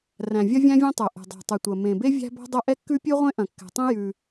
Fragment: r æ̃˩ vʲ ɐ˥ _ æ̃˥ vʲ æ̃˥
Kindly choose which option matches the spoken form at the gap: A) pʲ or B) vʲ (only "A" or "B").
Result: B